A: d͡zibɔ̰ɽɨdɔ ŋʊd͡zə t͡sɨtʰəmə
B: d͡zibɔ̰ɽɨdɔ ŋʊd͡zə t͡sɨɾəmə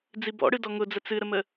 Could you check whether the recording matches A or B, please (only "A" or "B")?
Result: B